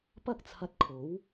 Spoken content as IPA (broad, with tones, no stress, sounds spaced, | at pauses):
p ɐ˥ k̚ t͡sʰ ɐ˧ t̚ kʰ o˨˥ w